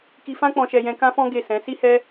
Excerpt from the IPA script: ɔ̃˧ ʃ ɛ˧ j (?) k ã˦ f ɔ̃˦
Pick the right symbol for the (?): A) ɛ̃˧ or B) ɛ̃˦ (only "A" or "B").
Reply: A